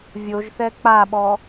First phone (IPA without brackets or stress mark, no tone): vʲ